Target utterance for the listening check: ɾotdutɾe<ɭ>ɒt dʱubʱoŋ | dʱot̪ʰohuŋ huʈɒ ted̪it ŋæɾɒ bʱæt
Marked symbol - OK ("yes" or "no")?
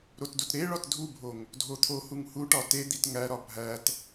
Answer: yes